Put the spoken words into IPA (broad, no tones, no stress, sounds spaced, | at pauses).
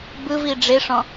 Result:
b ɯ v i ɖ͡ʐ e ʂ ɔ̃